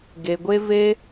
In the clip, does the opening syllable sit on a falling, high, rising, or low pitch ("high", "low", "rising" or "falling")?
low